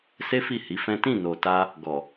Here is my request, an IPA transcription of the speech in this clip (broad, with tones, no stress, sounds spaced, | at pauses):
s e˦ f i˦˨ h i˨˦ f ɛ̃˦ t ĩ˦˨ n o˨ t a˧ | ɡ ɔ˨